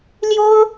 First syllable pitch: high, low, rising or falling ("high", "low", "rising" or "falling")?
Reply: high